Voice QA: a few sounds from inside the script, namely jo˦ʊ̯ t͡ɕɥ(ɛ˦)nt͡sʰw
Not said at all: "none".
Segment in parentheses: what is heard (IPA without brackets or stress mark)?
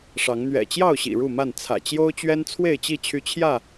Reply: ɛ˦